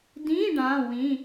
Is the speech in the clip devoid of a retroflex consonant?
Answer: no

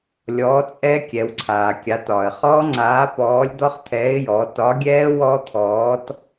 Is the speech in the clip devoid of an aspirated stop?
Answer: no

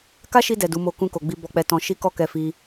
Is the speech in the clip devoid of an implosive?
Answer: yes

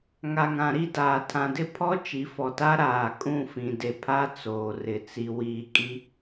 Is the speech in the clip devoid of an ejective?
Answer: no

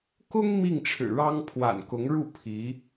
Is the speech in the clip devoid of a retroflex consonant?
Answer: no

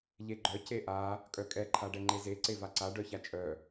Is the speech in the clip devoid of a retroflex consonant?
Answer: no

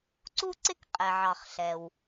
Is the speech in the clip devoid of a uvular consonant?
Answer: no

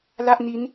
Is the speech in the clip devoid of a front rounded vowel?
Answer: yes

